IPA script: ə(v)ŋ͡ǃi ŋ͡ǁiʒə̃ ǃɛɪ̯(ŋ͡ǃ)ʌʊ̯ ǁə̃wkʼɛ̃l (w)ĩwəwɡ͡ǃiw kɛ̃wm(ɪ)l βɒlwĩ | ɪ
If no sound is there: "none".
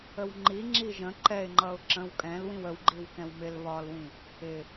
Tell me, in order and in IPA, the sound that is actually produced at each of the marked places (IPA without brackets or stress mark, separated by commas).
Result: w, ŋ͡ǃ, w, ɪ